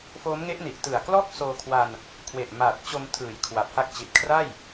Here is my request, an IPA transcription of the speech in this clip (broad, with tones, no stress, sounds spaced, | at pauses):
f oː˦˥ m ŋ e˦˥ ʔ n i˨˩ ʔ t ɯ˨˩ a̯ k l ɔː˥˩ k̚ s oː˧ kʰ w a˧ n | kʰ w e˨˩ ʔ m aː˨˩ t̚ t͡ɕ o˧ m tʰ ɯː˨˩ j kʰ w a˨˩ p̚ h a˦˥ k̚ t͡ɕ i˨˩ t̚ kʰ r a˥˩ j